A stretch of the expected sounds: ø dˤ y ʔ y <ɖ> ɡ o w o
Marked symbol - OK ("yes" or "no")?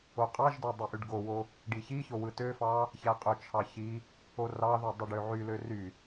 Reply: yes